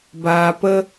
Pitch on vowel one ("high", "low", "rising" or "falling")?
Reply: low